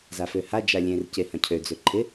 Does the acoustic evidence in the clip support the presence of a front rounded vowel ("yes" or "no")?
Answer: yes